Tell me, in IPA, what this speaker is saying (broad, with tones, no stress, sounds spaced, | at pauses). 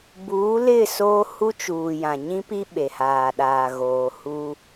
b uː˨˦ l ɪ˦˨ s oː˦ h u˦ t͡ʃ uː˨ j ã˨ ɲ ĩ˦ p i˦ ɓ e˨ h aː˨ ɗ aː˨ ɣ oː˨ h uː˦